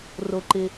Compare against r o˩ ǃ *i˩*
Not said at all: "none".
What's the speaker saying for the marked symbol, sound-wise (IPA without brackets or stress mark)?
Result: ɪ˩